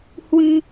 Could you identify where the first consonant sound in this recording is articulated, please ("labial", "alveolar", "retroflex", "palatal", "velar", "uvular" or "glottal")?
glottal